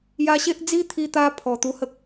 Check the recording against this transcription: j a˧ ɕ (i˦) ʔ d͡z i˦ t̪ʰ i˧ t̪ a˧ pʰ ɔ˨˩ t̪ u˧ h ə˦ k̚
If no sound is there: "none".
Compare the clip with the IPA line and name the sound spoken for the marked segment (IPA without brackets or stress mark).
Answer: e˦